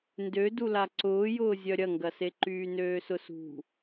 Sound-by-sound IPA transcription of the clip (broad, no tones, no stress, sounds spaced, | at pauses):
n d ø d u l a ǀ ʊː j ʊː zʲ œ ɾʲ ɐ ŋ ɡ ɐ s e ǃ yː n øː s ʊ s ṳ